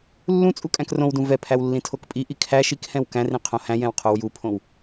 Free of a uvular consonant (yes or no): no